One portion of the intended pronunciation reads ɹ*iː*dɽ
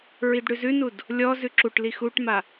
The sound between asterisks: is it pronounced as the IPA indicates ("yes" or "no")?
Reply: no